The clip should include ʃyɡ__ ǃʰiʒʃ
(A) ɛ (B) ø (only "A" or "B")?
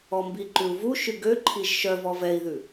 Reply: B